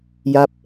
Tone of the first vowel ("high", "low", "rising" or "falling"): falling